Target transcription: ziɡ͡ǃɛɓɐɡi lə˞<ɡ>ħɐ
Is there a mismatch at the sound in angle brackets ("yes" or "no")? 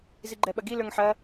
yes